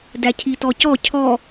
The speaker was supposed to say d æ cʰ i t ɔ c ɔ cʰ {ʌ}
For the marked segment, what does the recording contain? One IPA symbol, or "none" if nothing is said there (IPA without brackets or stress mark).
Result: ɔ